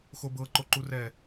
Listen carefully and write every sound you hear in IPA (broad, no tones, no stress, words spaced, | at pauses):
xobɤ ǃoǃurɛ